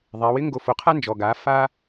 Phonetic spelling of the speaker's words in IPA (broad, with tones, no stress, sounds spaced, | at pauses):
ðˤ ɛ˩˧ w ɪ˥ ŋ ɡ o˧ f o˩˧ qʰ a˥ n d͡ʒ ɔ˩ ɡ a˩˧ f a˧